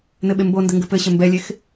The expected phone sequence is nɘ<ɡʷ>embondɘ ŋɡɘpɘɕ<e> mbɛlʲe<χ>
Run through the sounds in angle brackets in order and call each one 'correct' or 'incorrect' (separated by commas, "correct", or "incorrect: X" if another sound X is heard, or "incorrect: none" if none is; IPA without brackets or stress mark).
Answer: incorrect: ɓ, incorrect: ɘ, incorrect: x